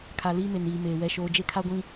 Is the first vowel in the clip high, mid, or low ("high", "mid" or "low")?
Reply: low